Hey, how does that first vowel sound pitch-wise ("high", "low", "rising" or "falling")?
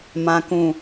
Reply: low